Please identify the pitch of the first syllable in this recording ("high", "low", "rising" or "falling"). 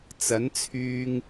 rising